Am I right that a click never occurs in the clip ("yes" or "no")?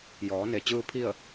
yes